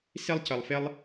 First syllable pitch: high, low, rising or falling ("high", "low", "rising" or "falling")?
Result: high